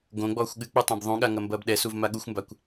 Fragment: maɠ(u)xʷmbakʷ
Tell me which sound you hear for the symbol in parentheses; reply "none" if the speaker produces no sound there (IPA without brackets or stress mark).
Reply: u